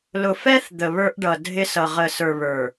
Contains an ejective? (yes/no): no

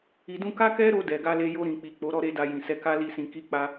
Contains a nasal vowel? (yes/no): yes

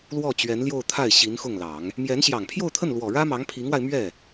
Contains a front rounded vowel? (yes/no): no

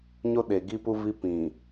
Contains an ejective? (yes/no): no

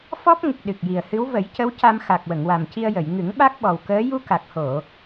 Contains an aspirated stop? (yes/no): no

